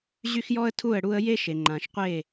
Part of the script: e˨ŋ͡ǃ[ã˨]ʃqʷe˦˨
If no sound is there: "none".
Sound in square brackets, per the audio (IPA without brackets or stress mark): ã˨